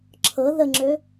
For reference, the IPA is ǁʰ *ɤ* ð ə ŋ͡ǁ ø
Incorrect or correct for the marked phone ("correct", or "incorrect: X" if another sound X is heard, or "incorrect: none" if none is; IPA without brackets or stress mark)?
correct